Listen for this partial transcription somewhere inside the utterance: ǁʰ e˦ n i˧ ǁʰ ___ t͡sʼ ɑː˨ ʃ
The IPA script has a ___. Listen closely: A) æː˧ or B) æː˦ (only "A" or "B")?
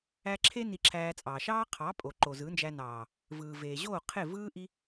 A